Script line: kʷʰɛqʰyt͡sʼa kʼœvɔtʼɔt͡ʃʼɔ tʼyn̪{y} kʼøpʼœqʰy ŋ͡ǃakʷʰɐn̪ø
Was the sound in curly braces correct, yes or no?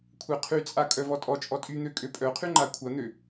no